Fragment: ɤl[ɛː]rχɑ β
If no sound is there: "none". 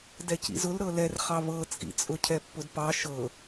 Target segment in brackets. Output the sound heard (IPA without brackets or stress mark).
ɛ